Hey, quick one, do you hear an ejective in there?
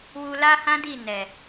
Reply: no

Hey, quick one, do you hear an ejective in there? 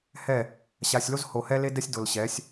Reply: no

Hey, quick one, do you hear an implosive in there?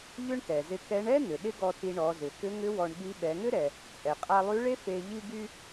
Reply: yes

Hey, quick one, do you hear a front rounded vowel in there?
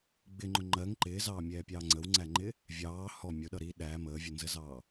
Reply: no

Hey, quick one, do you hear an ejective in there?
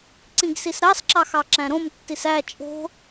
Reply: yes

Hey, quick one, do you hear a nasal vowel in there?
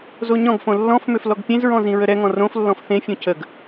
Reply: yes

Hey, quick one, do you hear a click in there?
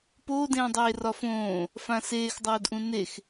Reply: no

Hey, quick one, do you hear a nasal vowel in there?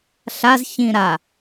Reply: yes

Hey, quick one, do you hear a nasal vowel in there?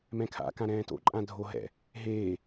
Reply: yes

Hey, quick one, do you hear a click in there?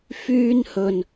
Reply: no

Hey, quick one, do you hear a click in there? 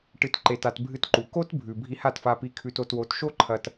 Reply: yes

